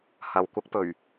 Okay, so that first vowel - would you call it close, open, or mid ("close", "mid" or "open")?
open